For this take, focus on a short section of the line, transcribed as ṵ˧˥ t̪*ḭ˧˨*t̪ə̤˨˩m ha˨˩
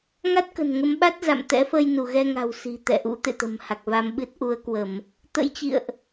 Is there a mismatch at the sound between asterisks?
yes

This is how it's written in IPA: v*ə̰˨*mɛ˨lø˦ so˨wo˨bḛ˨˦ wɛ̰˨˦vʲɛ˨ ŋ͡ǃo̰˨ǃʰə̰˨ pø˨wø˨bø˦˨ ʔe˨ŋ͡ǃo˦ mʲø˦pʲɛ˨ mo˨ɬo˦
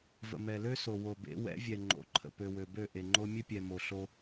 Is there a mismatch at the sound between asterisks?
no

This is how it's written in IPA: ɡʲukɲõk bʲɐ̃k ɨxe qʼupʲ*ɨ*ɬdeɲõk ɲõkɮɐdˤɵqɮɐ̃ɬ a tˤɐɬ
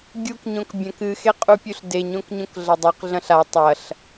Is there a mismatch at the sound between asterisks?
yes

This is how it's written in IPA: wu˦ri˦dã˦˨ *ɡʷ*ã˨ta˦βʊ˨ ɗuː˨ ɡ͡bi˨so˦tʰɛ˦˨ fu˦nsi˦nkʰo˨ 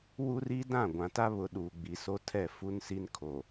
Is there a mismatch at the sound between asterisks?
no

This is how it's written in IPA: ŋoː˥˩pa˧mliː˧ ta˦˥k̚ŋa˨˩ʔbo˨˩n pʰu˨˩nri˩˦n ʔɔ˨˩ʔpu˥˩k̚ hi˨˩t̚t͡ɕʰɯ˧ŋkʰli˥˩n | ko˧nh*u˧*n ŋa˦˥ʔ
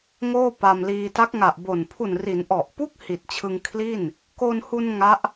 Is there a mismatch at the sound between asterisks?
no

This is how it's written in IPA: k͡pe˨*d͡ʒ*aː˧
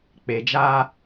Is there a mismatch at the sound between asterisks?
no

